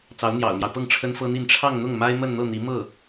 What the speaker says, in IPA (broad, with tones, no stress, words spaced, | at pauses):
t͡sɑ˧˥ʊ̯n̪jɑ̰˨˩ʊ̯mjɑ˦ʊ̯pɤ˥˩ŋ ʈ͡ʂʰə˥nfɤ˥n̪i˥˧n ʈ͡ʂʰɑ˥˧ŋn̪ʊ˥˩ŋ ma˥ɪ̯mə˥˧nn̪ɤ˥˩n̪i˧˥ mɤ˥˩